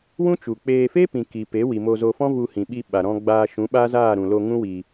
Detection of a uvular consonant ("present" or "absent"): absent